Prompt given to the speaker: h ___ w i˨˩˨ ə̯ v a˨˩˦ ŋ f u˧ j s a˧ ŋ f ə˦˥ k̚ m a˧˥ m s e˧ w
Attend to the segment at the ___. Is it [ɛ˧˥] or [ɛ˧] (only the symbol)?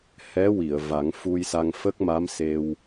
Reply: ɛ˧˥